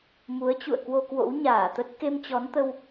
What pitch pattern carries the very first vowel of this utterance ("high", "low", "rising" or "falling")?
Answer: rising